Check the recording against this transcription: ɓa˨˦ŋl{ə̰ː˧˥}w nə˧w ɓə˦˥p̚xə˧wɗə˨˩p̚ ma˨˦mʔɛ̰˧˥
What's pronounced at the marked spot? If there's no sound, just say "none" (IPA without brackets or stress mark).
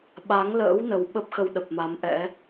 ə̰ː˧˥